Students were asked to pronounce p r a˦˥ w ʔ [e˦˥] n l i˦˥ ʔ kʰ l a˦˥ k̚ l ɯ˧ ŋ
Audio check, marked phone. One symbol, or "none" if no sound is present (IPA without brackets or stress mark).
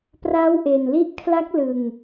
e˨˩